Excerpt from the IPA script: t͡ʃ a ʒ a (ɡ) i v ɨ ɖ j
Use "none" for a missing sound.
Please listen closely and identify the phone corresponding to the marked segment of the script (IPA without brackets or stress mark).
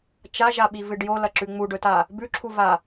ɓ